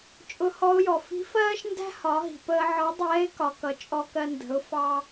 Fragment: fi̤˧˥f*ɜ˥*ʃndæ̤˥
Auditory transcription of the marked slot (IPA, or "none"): ɜː˥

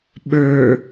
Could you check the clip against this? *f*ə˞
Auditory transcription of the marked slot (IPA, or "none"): ɓ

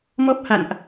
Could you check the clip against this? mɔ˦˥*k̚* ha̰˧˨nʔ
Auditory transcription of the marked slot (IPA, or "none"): p̚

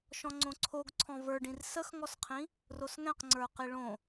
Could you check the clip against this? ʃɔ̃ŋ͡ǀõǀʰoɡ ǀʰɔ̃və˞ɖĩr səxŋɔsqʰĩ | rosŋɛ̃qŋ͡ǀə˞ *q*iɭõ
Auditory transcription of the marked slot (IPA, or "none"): q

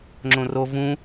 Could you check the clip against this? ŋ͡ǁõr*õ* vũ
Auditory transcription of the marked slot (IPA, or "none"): o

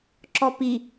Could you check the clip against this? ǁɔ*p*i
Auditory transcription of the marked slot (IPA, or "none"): p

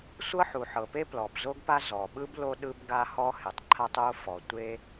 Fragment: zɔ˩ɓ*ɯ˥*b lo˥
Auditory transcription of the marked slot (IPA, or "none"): ɯ˥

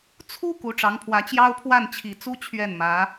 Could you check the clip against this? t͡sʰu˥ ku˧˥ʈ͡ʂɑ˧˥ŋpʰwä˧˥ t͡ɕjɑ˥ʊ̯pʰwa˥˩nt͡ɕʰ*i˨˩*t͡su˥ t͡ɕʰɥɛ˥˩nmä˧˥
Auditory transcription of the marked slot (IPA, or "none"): i˨˩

